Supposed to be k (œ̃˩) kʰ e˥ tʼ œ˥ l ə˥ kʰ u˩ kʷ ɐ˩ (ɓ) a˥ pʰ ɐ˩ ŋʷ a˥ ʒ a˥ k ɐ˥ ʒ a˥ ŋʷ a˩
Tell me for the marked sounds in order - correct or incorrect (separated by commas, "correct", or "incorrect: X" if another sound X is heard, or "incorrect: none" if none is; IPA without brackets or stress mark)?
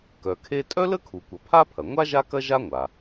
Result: incorrect: œ˩, incorrect: pʰ